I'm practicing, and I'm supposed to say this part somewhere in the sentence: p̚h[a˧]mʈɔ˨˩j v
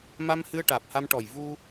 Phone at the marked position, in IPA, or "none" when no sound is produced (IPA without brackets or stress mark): a˧